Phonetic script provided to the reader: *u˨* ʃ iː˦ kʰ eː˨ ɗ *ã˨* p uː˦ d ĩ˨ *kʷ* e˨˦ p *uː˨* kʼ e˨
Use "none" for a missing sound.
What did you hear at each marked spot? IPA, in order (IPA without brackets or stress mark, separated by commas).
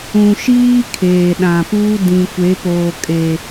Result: ũ˨, ã˨, kʷ, oː˨